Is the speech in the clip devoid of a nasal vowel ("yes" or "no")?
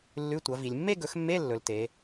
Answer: yes